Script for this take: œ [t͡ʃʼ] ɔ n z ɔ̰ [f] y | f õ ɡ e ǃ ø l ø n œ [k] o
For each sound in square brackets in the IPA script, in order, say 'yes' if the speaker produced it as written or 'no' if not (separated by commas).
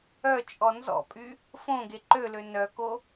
yes, no, yes